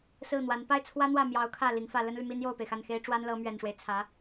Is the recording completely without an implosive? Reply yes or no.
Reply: yes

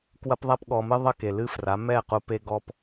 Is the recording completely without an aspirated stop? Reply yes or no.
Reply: yes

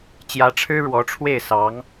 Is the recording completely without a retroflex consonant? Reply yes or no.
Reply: no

